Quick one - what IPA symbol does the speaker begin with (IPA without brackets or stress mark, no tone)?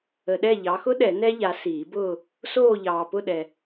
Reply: ə